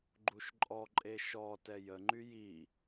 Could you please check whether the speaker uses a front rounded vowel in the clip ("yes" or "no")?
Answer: yes